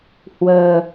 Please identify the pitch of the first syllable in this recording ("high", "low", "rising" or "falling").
low